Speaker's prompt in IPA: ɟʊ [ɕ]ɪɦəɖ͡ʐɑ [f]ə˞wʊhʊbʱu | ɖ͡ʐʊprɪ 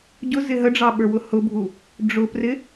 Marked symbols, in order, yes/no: no, no

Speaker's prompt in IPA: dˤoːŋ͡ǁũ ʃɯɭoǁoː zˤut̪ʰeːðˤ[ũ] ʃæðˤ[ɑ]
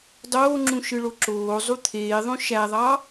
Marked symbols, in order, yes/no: no, yes

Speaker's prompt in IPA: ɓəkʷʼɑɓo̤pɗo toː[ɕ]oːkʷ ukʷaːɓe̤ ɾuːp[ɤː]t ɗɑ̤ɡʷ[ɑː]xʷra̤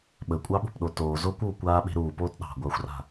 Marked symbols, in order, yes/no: no, no, no

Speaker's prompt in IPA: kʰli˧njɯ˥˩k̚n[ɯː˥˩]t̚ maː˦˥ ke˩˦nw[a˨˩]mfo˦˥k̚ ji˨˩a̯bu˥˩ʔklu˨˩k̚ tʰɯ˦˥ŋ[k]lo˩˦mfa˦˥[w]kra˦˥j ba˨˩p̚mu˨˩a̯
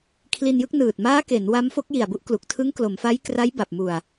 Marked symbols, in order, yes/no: no, no, yes, no

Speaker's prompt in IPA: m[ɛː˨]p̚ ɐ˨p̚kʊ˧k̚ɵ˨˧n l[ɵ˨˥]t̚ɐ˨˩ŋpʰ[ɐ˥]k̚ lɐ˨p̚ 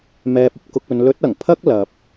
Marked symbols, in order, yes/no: yes, yes, yes

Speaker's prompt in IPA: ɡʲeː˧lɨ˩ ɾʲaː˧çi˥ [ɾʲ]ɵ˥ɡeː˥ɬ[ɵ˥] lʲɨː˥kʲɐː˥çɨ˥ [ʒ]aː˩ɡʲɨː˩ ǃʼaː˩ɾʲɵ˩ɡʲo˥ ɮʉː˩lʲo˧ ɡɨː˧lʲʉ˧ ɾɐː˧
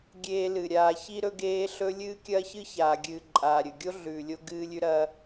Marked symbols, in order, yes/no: no, yes, no

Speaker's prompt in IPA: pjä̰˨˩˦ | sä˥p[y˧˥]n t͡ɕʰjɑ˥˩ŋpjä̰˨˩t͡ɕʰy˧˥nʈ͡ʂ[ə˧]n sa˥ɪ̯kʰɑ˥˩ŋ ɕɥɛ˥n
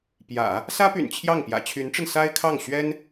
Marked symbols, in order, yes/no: no, yes

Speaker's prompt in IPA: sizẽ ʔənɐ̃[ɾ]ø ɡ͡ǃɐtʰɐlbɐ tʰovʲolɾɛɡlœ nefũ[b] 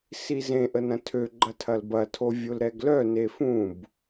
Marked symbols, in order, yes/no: no, yes

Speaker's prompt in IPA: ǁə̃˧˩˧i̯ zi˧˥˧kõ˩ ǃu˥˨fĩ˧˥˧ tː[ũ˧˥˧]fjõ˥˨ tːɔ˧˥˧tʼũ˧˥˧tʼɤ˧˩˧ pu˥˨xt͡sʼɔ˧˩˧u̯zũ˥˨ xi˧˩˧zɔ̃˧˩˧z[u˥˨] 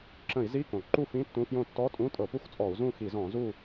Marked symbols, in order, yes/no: yes, yes

